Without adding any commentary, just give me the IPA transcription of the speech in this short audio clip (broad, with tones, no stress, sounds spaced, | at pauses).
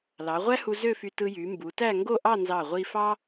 l ɑ˩˧ ʁʷ æ˥ h u˧ z ø˥˧ f y˧ t ɯ˧ j y˩˧ m b u˩˧ t æ˥˧ ŋ ɡ o˥˧ ʔ ɑ˥˧ n z ɑ˧˩ ʁʷ i˧ f ɑ˥